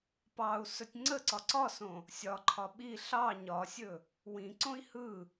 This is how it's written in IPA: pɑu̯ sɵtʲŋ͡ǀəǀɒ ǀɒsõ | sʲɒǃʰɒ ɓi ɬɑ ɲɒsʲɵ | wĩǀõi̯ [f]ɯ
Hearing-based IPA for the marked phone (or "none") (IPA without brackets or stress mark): h